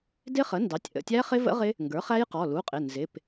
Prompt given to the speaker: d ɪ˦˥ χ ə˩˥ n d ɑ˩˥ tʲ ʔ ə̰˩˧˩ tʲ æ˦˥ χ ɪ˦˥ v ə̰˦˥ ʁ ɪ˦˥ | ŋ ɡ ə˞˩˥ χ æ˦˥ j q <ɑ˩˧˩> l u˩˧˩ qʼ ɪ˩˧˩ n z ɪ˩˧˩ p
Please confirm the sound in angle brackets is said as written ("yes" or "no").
no